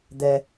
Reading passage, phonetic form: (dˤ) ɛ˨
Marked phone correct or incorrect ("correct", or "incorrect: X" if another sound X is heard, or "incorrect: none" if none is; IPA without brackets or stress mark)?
incorrect: d̪